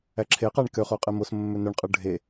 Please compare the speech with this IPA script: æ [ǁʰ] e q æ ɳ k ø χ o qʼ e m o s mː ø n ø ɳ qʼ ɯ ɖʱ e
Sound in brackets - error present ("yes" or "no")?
no